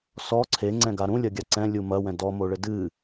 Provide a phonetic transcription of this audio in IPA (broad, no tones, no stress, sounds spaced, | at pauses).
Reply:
s ɔ ǀʰ e ŋ͡ǀ ɛ̃ ɡ a ɾ ũ lʲ ɐ ɡʲ a ǀ ɛ̃ lʲ u m ɐ w ɛ̃ d ɔ m o ɭ ɘ d ɨ